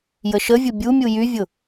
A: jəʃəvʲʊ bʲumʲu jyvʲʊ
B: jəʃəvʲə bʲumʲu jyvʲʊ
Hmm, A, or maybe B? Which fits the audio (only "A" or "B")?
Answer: A